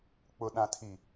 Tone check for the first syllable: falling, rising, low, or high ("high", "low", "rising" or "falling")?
low